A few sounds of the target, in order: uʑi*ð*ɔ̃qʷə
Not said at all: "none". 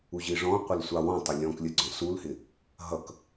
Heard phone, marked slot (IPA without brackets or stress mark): ʐ